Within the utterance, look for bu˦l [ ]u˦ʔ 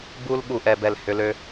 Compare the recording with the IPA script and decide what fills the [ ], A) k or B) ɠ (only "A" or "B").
B